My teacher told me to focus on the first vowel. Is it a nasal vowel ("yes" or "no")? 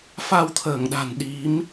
no